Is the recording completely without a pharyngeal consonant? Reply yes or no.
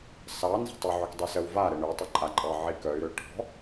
no